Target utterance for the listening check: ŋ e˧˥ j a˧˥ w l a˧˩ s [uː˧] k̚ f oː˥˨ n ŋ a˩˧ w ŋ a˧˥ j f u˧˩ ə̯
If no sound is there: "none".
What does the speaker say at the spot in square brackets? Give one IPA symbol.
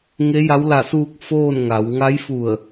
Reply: uː˧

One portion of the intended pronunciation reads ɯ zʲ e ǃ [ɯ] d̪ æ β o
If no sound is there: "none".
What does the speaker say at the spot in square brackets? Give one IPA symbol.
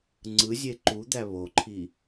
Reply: u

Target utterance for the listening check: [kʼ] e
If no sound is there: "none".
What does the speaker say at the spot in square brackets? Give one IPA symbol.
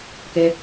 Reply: k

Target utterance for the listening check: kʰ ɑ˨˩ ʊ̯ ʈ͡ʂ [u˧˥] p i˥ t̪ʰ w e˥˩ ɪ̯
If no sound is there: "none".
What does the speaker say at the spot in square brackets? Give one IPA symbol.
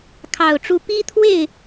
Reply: u˧˥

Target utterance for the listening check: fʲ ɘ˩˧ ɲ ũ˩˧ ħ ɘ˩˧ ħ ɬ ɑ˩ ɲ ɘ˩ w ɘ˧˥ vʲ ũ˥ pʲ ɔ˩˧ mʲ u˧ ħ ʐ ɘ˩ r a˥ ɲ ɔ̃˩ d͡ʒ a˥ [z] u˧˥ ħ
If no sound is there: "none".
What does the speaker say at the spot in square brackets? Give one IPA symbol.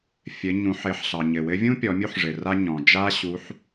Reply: ɕ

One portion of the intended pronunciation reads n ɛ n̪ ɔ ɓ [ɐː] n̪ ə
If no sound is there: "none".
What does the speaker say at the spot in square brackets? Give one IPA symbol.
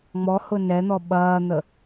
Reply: ɐː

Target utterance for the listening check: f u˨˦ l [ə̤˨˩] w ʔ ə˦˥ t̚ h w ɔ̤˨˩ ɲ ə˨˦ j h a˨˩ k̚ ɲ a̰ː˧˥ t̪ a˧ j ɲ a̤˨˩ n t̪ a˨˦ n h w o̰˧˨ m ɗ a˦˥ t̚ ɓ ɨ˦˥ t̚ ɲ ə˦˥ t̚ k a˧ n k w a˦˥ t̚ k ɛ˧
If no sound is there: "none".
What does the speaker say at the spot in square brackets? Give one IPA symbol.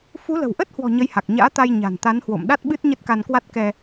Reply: ə̤˨˩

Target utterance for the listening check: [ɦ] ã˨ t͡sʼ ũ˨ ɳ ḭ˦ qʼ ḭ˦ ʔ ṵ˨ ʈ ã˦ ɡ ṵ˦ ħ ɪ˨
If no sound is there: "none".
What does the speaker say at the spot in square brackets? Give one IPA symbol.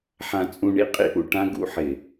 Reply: ħ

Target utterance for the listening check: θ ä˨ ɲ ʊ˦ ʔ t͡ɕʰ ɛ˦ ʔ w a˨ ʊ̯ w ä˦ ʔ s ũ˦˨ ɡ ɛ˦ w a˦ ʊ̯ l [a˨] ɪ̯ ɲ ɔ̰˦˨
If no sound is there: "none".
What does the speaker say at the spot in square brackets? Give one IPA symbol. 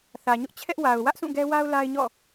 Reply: a˦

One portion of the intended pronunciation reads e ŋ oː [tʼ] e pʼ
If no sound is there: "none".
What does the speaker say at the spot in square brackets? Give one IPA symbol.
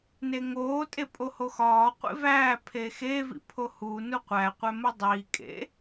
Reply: tʼ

